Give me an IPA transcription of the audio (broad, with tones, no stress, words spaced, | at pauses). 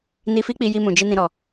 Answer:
ni˧fi˦k͡pi˧ ji˧mũ˨d͡ʒi˧ nĩ˨ɾɔ˨